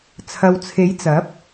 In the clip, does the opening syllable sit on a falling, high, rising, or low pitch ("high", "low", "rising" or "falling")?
low